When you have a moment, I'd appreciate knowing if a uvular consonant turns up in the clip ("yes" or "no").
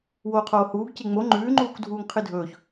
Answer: yes